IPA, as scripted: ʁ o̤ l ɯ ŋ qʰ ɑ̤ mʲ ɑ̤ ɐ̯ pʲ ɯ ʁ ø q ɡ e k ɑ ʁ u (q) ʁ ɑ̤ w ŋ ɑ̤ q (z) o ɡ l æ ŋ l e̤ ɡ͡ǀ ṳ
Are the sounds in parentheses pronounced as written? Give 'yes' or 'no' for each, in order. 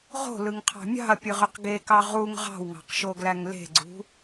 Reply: no, no

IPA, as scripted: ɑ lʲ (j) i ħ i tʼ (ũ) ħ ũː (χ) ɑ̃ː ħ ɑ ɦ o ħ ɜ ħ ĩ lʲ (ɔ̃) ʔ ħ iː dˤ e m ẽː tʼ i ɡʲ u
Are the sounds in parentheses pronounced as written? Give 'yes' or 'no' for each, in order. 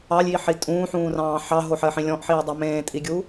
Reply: yes, no, no, yes

